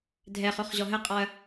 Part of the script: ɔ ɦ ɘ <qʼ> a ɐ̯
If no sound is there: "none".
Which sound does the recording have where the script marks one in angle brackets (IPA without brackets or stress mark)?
qʼ